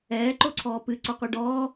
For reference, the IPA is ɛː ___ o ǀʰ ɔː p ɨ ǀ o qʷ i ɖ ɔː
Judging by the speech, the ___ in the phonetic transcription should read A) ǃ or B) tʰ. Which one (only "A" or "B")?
A